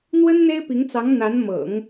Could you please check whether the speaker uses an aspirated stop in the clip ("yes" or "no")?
no